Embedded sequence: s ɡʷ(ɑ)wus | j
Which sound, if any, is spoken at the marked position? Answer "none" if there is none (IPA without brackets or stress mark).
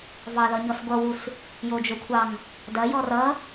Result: ʌ